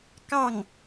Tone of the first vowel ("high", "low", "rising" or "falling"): falling